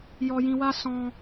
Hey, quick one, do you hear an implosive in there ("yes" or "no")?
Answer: no